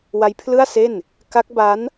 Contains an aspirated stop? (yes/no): yes